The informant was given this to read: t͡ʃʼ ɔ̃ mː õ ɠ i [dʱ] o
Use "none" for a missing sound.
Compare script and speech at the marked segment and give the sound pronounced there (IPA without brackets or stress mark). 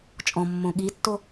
tː